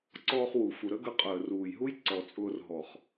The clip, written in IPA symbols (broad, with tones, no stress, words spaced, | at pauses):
ǀɔː˧χwu˨ fu˨ɾə˦ɡə˧ qʼəː˨ruː˨jɦu˦j ǀɔ˨t͡sʼʊː˧r ɦɔ˨χ